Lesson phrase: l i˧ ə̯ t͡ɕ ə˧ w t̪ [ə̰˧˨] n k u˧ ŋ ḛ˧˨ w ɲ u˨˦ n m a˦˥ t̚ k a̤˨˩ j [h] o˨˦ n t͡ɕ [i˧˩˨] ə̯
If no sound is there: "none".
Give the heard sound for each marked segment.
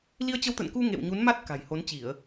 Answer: ə̰˧˨, h, i˧˩˨

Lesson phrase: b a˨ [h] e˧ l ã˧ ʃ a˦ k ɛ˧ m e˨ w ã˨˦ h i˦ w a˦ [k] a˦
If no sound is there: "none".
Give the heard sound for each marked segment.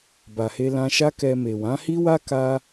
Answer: h, k

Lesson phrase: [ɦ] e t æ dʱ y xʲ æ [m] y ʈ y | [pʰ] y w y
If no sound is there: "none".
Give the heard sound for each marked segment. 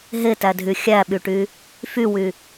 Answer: ɦ, ɓ, f

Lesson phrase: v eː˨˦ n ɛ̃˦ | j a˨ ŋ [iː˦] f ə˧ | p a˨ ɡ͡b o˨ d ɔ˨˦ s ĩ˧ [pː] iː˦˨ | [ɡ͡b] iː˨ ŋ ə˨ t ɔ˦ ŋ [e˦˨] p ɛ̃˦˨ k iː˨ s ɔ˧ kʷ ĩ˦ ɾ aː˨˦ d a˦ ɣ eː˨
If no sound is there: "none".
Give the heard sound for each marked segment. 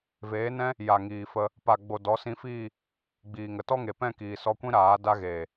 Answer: iː˨, f, ɡ͡b, e˨

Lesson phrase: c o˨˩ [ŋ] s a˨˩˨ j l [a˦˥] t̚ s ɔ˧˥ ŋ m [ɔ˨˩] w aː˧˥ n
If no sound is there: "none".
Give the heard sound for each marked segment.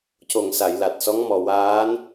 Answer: ŋ, a˨˩, ɔ˨˩

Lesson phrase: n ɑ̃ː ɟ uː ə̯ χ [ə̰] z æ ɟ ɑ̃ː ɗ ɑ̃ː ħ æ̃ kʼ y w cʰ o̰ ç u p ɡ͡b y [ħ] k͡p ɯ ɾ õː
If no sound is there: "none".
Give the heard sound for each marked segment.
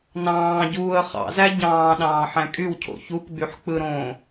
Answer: ɑ̰, ħ

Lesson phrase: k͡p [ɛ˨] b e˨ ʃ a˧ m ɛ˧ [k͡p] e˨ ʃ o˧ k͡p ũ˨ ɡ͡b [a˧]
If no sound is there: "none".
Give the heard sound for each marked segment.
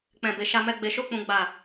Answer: ɛ̃˨, ɡ͡b, a˨

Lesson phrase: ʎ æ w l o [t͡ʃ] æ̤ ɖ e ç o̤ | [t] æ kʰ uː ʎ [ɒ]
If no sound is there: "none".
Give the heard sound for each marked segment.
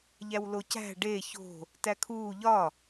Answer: c, t, ɒ

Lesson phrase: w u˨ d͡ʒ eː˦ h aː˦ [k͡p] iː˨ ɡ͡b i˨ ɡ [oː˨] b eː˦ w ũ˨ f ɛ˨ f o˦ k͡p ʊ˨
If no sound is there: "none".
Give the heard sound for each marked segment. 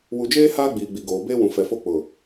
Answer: ɡ͡b, oː˨

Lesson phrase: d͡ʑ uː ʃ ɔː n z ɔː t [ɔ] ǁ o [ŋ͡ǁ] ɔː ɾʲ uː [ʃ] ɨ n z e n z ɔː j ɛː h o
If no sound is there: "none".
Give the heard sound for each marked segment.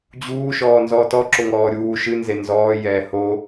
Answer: ɔ, ŋ, ʃ

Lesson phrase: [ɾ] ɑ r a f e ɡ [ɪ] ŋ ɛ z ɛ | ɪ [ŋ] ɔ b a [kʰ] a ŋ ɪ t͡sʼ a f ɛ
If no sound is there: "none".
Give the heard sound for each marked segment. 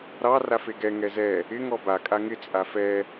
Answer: ɾ, ɛ, ŋ, kʼ

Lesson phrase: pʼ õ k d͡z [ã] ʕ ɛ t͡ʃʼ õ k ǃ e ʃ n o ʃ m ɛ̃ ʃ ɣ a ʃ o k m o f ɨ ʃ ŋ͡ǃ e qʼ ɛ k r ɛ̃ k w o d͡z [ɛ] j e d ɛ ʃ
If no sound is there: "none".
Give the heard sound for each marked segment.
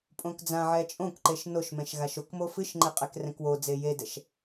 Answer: ã, e

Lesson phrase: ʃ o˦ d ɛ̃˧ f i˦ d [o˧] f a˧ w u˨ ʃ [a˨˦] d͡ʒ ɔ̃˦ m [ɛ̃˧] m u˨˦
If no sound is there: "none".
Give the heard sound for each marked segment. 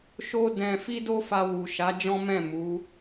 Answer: o˦, a˨˦, ɛ̃˦˨

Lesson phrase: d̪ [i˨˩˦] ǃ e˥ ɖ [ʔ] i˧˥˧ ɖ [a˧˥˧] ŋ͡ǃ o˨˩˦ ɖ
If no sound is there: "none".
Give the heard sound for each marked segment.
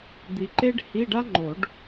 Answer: i˨, h, a˥

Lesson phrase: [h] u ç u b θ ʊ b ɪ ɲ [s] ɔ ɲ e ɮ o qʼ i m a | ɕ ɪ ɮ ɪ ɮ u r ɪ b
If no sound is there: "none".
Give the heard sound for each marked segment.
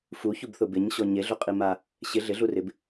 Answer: f, ɕ

